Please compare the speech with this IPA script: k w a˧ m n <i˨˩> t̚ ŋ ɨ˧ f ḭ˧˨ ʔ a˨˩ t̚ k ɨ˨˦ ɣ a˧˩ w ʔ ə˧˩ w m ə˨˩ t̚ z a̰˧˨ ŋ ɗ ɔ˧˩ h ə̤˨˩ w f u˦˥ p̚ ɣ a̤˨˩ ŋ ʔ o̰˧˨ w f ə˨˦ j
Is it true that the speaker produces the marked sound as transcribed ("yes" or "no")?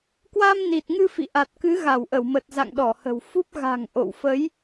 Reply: yes